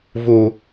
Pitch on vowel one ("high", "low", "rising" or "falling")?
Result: low